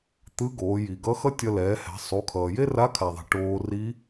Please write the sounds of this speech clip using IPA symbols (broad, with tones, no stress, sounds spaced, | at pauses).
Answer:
t̪ ɯ˧˥ ɡ oː˩˧ j i˩ ɡ ʌ˧˥ x ʌ˥ tʲ ʌ˧ l ɛː˩˧ h ɛ̤˩˧ sˤ u˩˧ kʰ ʌː˩ j e˥ r a˧˥ kʰ a˩ ðˤ ɛ̤˩ ʈ oː˧ r i˧˥